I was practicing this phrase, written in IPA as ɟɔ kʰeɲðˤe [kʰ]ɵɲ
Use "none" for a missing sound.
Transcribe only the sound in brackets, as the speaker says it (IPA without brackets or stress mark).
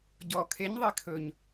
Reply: kʰ